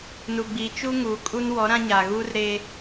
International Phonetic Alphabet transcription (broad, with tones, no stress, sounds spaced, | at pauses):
n u˨ ɡ͡b iː˨ t͡ʃ u˦ ŋ uː˨ kʼ u˦ n w ɔ˨˦ ɾ ã˦ ɲ a˨ ɣ uː˦ r ɾ e˦